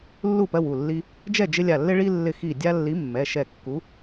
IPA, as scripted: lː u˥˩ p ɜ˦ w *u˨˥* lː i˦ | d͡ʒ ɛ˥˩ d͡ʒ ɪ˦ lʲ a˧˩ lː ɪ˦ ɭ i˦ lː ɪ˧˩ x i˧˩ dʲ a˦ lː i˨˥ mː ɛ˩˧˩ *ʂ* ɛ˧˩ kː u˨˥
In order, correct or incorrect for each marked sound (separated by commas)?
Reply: incorrect, incorrect